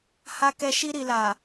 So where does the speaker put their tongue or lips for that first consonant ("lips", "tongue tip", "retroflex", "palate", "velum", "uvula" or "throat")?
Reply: throat